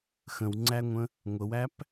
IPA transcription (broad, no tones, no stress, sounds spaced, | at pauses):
x ə̃ w ŋ͡ǀ æ ŋʷ ə̃ | ŋʷ ə w æ p